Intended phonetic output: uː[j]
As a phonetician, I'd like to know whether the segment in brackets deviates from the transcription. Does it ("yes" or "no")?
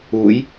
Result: no